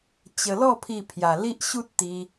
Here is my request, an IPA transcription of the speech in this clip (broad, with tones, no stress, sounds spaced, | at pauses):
t͡ɕ ə˧ l ɔ˥˧ pʰ i˥˧ pʰ j a˧ l i˦ ʔ ɕ u˦ t̚ t̪ i˧